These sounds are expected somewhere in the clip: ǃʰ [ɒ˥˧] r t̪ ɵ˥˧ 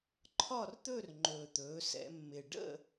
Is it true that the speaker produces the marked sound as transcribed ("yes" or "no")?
yes